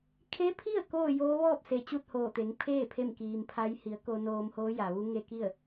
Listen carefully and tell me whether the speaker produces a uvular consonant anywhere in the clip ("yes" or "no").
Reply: no